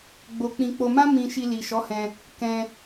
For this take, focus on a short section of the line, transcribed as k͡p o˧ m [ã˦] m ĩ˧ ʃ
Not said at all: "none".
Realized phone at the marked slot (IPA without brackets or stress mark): ã˦